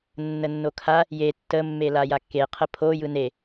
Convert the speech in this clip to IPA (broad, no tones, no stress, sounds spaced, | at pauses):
nː ə nː o kʰ a | j e tː ə mː e l a j a kː e qʰ ə pʰ o j ɯ n e